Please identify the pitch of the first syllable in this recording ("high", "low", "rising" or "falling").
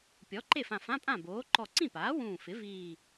rising